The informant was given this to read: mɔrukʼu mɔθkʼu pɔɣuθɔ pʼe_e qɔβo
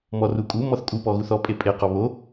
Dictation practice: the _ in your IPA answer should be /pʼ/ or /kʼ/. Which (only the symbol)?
pʼ